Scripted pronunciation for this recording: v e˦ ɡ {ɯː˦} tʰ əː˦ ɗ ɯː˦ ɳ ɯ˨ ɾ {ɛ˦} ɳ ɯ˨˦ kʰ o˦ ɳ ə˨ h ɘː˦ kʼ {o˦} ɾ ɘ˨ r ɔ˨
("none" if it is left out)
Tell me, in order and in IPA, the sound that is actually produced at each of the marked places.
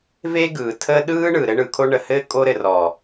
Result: ɯː˨, ɘ˦, o˦

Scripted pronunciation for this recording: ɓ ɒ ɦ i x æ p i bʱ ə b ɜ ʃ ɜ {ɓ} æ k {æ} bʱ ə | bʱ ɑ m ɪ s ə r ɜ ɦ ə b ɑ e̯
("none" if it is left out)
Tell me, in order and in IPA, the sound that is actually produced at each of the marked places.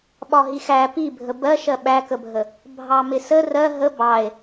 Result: ɓ, ə

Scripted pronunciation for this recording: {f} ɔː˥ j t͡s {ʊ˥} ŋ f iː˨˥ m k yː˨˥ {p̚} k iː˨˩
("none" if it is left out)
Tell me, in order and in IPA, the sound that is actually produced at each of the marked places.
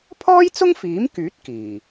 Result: pʰ, ʊ˥, t̚

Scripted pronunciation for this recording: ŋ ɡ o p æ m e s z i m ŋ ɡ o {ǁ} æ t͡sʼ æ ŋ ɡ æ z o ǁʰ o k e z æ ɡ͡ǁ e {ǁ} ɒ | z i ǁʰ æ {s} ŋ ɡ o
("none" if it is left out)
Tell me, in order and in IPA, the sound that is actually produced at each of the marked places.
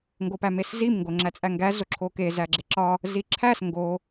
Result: ŋ͡ǁ, ǁ, s

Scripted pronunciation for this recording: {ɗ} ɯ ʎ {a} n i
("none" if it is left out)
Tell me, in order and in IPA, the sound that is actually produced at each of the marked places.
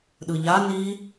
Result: ɗ, a

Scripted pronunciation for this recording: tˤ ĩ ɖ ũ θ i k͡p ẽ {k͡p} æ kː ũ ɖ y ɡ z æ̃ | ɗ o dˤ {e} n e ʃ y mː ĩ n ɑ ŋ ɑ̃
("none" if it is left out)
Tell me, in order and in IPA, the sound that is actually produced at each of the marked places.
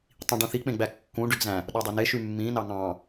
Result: ɡ͡b, ø

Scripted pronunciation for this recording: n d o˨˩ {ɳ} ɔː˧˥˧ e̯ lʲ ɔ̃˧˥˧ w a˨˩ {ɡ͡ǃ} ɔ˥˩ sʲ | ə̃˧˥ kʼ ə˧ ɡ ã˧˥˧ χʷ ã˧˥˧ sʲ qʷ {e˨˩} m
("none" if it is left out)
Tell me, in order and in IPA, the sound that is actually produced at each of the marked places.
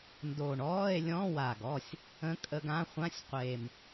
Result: ɳ, ɡ, e˨˩

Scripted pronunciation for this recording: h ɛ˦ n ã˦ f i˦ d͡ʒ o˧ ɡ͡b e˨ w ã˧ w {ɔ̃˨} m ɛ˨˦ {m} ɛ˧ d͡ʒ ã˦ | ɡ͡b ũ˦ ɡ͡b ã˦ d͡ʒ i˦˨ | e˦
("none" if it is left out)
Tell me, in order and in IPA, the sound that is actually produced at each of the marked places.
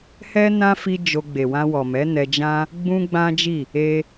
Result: ɔ˨, n

